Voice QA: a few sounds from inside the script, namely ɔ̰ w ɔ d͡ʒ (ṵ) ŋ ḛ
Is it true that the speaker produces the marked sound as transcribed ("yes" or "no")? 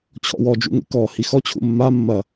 yes